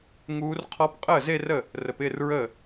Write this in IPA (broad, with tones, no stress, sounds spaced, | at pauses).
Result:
ŋ uː˧˥ r qʰ ɔ˧˥ p qʼ əː˥˩ z e˥˧ r ə˥˩ | r ə˩˧ p ɪː˥˩ r ɹ əː˥˩